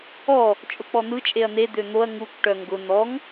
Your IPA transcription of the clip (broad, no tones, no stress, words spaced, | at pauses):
ɔ | t͡ʃʼʊk͡pɔn̪ɯ t͡ʃʼeɐ̯n̪e d̪øn̪oɐ̯ ŋukʷ ʈœŋɡʊ n̪ɔŋ